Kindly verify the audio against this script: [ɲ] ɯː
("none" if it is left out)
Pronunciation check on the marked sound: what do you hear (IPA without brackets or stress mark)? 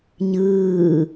ɲ